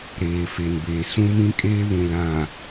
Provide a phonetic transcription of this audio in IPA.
ɾ eː˨ f e˨ n b eː˨ s ũ˦ m ĩ˦ kʼ eː˦ β ũ˨ l ã˨

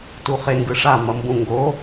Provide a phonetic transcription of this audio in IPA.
t u χ e ŋ ɡ ɯ ʂ a m ʌ m b ũ ŋ ɡ o

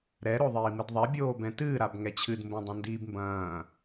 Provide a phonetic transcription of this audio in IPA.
ɾ ɛ ɾ o ðˤ iː m ɨ d ðˤ ɛ bʲ oː b ɛ̃ t ɨː ɾ a b ŋ ɛ t͡ɕʰ ɨ d m b õ dˤ ɐ̃ n d iː b m b ɐ̃ː

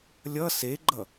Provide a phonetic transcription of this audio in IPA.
lʲ ʌ s e ɡ͡ǃ ʌ

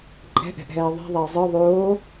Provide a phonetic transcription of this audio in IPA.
ǃʼ ɛ̤ ʔ ɛ̤ ʔ ɦ ɛː ðˤ i̤ ðˤ ɛ ɪ̯ zˤ ɯ ðˤ oː

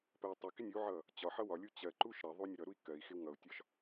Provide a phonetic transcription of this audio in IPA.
p ɜ i̯ tˤ ɪ k ɪ nʲ u ʕ ʌ | t͡ɕ ɒ ħ ʌ w ɒ lʲ u t͡ɕ ɜ ǃ u ʃ ɾ ɜ ðˤ u nʲ ʌ ɾ ʌ ɾ u i̯ k ɜ i̯ x ɪ w ŋ ʌ u̯ tʲ ɒ ʃ

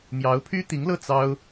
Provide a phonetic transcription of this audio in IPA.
m j ɑ˧˥ ʊ̯ pʰ y˥ t̪ i˧˥ ŋ l ɤ˥˩ t͡s ɑ˥ ʊ̯

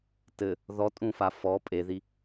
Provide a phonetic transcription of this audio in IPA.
t ɘ | ð ɔ tʼ ũ f a f ɔ pʼ e ð i

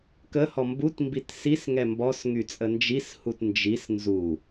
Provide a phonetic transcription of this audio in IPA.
k ə h ɔ m b u t m b i t s i s ŋ ɛ m b ɔ s ŋ y t͡sʼ ə n d͡ʒ i s h u t n d͡ʒ i s n z u

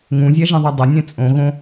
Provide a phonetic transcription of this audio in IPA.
ŋ ũ zʲ a ʒ ɛ̃ ðˤ ɛ dˤ ʊ nʲ ɛ̃ t͡sʼ õ ɣ õ

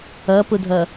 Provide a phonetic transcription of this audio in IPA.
ʌ p ʊ dʱ ʌ

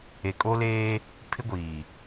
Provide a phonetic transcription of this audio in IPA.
e˨ kʼ o˦ l eː˦ | pʰ ɪ˦ ɡʷ iː˨

